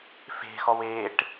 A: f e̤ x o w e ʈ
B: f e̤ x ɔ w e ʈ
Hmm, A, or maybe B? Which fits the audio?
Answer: B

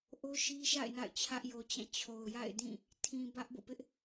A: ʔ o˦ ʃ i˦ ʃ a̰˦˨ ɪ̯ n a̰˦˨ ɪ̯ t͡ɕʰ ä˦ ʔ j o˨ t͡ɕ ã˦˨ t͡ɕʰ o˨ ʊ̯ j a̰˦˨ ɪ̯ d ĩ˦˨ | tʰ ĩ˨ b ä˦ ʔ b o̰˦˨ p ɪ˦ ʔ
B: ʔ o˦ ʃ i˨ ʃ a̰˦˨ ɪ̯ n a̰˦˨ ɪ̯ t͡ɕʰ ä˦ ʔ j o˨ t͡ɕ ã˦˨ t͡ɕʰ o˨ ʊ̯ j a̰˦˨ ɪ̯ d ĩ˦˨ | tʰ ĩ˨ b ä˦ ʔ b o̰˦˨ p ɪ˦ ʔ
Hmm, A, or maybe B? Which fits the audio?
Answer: A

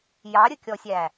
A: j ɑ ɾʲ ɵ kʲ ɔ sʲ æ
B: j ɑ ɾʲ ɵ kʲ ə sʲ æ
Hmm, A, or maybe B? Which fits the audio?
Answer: A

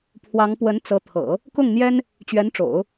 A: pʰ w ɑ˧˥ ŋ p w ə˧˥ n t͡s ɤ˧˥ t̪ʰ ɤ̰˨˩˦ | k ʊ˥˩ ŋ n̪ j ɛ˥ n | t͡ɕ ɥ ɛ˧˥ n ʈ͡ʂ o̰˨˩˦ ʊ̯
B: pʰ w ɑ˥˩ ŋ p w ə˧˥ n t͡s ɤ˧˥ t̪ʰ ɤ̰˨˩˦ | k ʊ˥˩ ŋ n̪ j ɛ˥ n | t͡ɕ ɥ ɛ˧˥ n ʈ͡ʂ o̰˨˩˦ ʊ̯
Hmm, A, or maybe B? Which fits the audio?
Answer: A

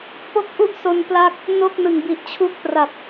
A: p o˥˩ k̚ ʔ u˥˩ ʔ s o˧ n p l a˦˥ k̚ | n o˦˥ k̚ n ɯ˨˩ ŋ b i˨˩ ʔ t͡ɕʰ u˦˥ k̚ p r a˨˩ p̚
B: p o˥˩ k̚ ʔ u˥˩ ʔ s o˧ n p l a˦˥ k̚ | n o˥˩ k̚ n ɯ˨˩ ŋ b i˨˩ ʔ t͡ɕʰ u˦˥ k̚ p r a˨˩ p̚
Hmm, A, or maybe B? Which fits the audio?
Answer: B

